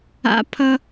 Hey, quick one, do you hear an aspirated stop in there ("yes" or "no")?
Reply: yes